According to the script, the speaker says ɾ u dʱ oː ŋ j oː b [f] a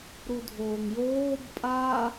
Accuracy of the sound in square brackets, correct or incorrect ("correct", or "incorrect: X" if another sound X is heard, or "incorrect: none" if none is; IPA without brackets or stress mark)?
incorrect: pʼ